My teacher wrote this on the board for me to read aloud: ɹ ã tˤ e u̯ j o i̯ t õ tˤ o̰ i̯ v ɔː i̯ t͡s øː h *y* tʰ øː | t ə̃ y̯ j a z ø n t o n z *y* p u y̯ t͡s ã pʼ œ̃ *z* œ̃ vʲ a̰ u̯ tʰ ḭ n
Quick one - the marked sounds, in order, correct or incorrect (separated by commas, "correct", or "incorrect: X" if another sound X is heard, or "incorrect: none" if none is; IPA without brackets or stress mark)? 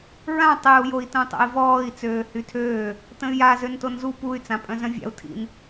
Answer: correct, incorrect: u, correct